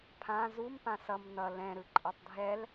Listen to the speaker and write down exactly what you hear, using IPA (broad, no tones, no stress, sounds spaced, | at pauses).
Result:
pʰ ã z u m p ã s ʌ m n ʌ l ɛ̃ ɾ ɯ ǃʼ ʌ tˤ dʱ ɛ l